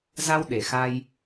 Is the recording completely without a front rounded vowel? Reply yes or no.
yes